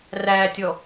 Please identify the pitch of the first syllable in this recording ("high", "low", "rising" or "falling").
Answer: low